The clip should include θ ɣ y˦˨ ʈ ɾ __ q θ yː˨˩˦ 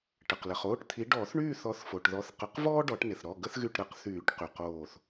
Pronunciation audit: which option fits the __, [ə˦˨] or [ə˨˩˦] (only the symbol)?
ə˨˩˦